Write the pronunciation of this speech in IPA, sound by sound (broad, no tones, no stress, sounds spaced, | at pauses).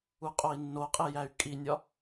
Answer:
u qʼ o i̯ nː o qʼ e j æ y̯ kʼ i nʲ ɒ